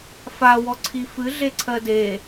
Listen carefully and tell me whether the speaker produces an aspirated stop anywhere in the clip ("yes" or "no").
yes